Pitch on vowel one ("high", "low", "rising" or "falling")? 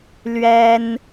high